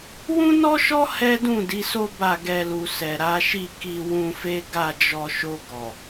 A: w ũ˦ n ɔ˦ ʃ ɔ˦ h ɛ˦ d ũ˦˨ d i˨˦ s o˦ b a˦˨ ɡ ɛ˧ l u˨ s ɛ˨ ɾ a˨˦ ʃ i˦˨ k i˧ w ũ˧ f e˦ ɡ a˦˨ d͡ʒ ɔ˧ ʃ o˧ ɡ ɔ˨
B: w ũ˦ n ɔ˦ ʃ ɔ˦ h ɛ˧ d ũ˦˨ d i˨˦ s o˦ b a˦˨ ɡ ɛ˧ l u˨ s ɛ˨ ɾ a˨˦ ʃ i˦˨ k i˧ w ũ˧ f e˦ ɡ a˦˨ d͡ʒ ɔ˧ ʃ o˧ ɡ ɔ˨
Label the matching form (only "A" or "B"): A